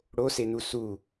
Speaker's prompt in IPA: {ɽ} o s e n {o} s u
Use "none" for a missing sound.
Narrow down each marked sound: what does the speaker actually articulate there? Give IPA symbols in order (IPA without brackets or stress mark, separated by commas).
ɽ, u